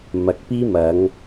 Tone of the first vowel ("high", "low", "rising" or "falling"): low